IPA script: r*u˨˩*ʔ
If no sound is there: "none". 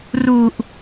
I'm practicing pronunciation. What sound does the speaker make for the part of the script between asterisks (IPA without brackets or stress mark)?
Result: u˨˩